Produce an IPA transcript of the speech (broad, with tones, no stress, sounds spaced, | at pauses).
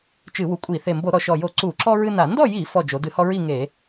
t͡ʃ ɨ˧˩˧ w u˨˩ kʷʼ i˧˩˧ θ e˨˩ m b o˧˩˧ ɾ ɔ˩˧ ʃ ɔ˨˩ j o˧˩˧ ǀ u˧˩˧ ǁ ɔ˦ ɹ ɨ˦ n a˧˩˧ n d ɔ˥˨ j i˧˩˧ f ɔ˨˩ d͡ʒ o˩˧ d ɨ˧˩˧ h ɔ˦ ɹ i˥˨ ŋ e˧˩˧